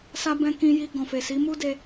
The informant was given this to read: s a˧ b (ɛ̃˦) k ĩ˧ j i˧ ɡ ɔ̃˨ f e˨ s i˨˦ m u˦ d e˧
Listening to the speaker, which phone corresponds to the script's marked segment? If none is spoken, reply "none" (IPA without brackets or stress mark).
ɛ̃˧